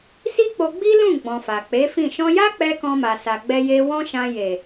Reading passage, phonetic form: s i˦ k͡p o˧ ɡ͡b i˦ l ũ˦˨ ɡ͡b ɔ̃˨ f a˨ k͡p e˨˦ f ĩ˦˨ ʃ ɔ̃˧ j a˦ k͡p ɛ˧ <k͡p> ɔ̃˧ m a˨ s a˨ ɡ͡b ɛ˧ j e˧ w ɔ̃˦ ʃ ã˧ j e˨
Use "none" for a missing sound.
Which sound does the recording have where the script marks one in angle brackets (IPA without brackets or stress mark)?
k